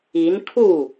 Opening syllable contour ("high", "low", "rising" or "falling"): rising